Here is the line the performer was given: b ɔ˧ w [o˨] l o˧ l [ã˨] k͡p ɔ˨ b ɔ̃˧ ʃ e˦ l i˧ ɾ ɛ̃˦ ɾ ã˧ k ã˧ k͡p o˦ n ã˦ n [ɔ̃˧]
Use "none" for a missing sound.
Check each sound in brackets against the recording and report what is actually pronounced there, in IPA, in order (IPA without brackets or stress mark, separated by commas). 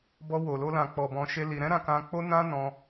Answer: o˨, ã˨, ɔ̃˧